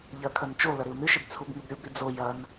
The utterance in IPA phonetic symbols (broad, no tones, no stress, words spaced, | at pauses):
ʎɐkʰɐn t͡ʃo lɐɾɪu̯nɨʃɪb t͡sʰubŋʉbɾʲubɾi d͡zo jɐn